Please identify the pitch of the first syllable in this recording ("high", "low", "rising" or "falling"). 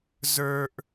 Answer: high